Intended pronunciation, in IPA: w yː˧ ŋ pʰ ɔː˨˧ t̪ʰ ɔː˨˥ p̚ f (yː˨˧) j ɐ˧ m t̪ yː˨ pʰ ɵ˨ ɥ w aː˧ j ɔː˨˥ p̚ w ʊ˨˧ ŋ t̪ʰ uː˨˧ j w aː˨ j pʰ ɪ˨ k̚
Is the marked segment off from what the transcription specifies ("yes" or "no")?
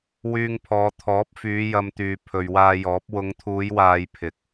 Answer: no